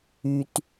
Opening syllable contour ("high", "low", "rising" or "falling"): low